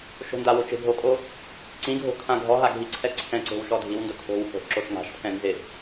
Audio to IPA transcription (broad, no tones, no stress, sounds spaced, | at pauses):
ʃ o̤ n d a w o t͡ʃ e̤ bʱ o kʼ o | ǀ ĩ ɡʱ o̤ kʰ ã ɡʱ ɔ ɦ a ɡʱ i ǀʰ ɛ ǀʰ ɛ̃ ǀ e̤ w ʃ ɔ dʱ i w n d ʊ kʰ o̤ w h o̤ ʔ ǁ o ʃ ŋ a̤ ʃ pʰ ɛ̃ n z ɪ